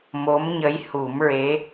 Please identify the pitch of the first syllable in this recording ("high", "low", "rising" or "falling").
rising